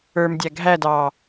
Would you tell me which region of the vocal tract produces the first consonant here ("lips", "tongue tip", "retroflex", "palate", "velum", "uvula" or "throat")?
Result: lips